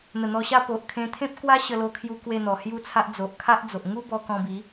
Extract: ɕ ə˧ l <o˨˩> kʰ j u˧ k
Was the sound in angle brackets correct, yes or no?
no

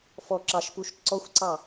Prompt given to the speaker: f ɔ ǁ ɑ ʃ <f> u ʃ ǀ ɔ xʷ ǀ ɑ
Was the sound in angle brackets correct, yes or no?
no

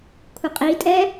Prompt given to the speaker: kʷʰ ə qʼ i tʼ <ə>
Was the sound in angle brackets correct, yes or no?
no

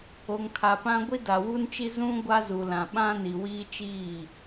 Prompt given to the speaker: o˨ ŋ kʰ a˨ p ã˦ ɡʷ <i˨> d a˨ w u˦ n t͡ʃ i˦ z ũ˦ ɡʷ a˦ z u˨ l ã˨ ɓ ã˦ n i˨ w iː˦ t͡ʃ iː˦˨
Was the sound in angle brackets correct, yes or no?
no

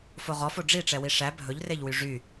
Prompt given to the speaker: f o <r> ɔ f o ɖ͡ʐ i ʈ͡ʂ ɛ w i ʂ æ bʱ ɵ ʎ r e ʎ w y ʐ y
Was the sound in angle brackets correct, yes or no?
no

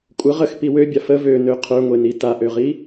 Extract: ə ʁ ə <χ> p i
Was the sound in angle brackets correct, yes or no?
no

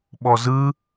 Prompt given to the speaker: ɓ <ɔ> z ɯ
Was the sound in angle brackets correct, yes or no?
yes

